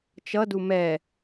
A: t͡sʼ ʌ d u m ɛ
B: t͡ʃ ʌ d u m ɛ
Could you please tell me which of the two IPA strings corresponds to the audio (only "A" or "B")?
B